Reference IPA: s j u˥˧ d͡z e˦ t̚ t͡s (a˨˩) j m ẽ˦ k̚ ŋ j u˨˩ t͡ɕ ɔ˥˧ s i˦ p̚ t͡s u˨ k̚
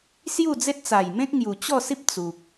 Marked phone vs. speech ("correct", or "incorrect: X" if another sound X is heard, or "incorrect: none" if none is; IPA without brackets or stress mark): correct